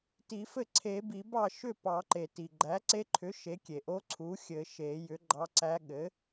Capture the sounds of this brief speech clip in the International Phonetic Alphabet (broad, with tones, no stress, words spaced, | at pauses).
ti˨˩˦fɘ˥˩ ǀʰe˨˩˦bi˨˩˦ bɑ˥˩ ʃʏ˥˩pɑ˨˩˦ǃe˩ ti˩ɡ͡ǃæ˩˥ǀe˧˥ǃʰʏ˩˥ ʃe˩˥kʲe˩ʔo˧˥ ǀʰu˩˥xʲɘ˨˩˦ʃe˨˩˦jʏ˩˥ ɡ͡ǃɑ˧˥ǀæ˧˥ ɠɘ˩˥